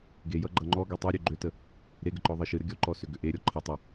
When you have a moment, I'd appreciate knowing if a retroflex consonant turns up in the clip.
no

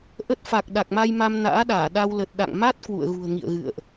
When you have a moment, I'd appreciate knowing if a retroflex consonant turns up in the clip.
no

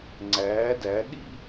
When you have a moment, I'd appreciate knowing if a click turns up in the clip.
yes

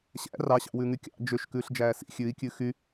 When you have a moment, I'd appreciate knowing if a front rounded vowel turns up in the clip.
yes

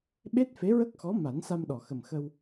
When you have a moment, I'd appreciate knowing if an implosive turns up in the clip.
yes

